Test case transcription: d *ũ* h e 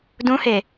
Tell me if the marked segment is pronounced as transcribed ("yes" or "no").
yes